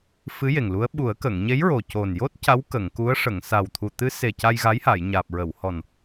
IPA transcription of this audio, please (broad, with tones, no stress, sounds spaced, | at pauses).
f ɨ˧˥ j e˨˩ ŋ l u˧˥ ə̯ ɓ u˨˩˦ ə̯ k ə˨˩˨ ŋ ɲ e˧˥ j ɹ o˨˩ c o˨˩ n j o˦˥ t̚ c a˧˥ w k ə˨˩˨ ŋ k u˧˥ ə̯ ʂ ə˨˩˨ ŋ s a˨˩ w t̪ʰ u˨˩ t̪ ɨ˧˥ s e˨˩ c a˧ j ɣ a˧˥ j h a˨˩˨ j ɲ aː˨˩ p̚ ɹ ə˨˩˨ w h ɔ˨˩ n